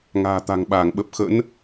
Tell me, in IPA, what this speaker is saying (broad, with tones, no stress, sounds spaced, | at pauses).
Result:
ŋ a̤ː˨˩ t̪ a̤˨˩ ŋ ɓ aː˧˩ ŋ ɓ ə˨˩ p̚ x ə̰˧˥ n